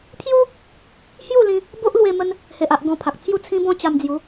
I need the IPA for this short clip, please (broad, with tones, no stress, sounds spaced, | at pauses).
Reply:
pʰ j u˦ | h j u˥˧ l ĩ˧ | b o˦ ʔ l w e˧ m ə˧ n | h e˨ ʔ a˨ ʔ ɡ ɔ̃˧ pʰ a˨ k̚ t͡sʰ j u˥˧ t͡sʰ ĩ˦ b ɔ̃˦ t͡ɕ a˧ m d͡z j u˨˦